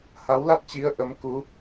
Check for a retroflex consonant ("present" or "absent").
absent